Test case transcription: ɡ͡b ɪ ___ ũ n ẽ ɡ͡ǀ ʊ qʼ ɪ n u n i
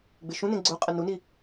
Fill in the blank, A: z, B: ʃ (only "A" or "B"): B